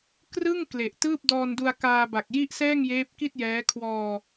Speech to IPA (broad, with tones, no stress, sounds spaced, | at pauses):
k r ɯ˥˩ ŋ k l e˨˩ ʔ t ɯː˥˩ p̚ d ɔː˧ n d u˧ a̯ k aː˧ b a˨˩ k̚ j i˥˩ ʔ s ɛː˥˩ ŋ j eː˦˥ p̚ k i˥˩ t̚ j ɛː˦˥ kʰ w ɔː˧